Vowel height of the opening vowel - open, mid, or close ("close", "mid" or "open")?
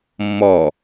mid